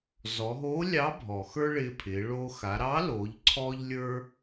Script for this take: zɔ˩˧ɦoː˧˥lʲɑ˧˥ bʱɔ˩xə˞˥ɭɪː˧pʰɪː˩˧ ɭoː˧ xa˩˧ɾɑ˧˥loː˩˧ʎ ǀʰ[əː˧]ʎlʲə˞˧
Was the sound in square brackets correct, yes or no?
no